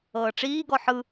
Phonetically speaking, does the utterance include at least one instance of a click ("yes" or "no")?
no